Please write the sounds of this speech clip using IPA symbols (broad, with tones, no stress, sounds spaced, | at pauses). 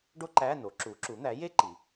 ɖ o˥ ǃ æ˧˥˧ n o˩˥ ǁ u˩˥ ǁ u˩˥ n̪ æ˩˥ j e˥ ǃ i˩˧